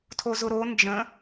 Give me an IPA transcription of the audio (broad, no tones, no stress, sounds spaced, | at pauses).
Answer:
tʰ o z ʊ ɾ o n d͡ʒ ə̃